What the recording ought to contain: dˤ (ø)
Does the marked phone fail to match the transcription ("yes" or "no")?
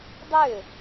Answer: no